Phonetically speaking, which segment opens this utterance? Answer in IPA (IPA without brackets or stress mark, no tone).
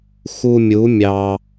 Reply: x